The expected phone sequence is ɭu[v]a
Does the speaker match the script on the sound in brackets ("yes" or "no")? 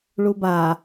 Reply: no